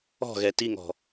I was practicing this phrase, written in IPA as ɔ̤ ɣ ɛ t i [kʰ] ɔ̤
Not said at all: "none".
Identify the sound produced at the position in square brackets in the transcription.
ŋ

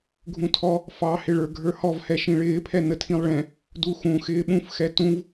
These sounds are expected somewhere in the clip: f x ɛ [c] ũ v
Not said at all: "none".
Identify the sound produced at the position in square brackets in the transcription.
t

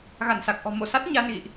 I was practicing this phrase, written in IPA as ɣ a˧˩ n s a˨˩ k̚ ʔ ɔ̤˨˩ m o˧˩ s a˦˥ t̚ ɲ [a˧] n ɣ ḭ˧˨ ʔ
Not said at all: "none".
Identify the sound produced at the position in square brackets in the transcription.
a˧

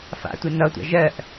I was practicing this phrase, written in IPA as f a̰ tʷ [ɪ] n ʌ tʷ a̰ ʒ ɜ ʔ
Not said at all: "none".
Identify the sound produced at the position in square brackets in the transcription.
ɪ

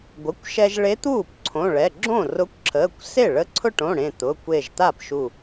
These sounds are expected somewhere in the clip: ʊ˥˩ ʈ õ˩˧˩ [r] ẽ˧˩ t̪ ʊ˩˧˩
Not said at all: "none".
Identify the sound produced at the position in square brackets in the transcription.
ɽ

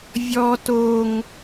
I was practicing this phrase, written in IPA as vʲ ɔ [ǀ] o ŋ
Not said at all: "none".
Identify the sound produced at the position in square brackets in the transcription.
t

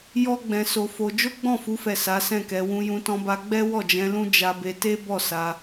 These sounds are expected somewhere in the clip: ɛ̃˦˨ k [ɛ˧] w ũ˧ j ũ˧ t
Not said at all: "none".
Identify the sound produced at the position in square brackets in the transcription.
ɛ˧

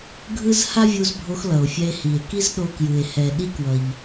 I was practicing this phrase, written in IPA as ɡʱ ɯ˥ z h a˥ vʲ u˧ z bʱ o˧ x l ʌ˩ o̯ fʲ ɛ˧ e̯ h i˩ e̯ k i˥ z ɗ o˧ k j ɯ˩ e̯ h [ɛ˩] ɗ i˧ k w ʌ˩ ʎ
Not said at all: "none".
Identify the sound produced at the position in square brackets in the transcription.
ɛ˩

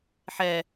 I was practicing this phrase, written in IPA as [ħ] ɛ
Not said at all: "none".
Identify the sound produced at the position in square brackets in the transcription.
ħ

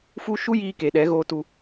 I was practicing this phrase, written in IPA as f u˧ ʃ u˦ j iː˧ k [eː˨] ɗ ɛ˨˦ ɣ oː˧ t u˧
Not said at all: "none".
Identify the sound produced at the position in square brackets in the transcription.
e˨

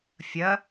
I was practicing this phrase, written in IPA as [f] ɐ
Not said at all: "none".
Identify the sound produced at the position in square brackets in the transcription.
fʲ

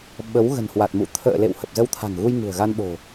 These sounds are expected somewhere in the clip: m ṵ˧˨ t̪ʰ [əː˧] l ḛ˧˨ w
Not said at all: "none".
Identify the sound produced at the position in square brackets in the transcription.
ə̰ː˧˨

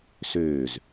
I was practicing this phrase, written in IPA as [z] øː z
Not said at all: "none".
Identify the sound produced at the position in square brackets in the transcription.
s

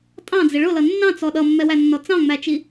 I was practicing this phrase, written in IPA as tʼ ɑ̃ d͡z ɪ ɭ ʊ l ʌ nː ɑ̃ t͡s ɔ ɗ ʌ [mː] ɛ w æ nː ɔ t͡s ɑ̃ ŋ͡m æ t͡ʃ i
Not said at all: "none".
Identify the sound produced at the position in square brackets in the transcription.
mː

